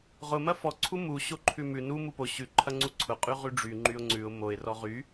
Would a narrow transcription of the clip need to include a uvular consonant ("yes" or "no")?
yes